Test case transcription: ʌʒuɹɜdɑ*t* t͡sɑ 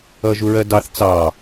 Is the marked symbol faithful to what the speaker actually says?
no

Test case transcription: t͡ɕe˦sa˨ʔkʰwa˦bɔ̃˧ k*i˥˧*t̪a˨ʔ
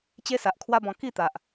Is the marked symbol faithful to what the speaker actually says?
yes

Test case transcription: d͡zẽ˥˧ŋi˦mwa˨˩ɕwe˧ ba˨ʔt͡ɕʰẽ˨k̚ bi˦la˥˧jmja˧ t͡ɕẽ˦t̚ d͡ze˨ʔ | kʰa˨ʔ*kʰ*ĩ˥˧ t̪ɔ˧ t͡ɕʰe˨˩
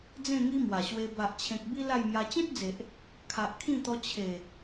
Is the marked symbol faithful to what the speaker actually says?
yes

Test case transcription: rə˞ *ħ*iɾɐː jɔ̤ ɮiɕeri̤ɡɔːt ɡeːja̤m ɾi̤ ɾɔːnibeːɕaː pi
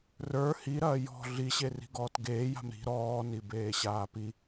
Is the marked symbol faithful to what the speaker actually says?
no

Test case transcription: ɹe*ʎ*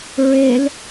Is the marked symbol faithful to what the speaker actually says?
no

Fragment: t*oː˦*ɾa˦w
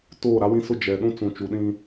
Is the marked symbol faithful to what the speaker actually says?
no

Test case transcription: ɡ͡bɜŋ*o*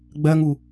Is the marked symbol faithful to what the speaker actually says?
no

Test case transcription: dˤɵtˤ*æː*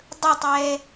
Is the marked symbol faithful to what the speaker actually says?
no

